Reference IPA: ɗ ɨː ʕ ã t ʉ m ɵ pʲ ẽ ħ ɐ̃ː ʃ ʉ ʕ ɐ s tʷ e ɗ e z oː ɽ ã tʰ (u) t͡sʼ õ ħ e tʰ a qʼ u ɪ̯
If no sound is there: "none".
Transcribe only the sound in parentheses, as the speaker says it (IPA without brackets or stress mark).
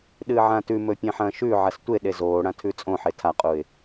ʉ